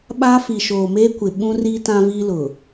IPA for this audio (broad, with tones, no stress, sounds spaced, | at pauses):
ɓ aː˦ f i˨ ʃ oː˨ m eː˦ kʷ ɪ˨ ɓ ũ˦ r i˦ t ã˦ v iː˦ l ʊ˨